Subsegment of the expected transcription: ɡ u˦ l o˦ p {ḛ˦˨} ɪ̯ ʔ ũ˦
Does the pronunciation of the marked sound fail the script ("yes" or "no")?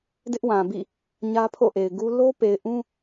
yes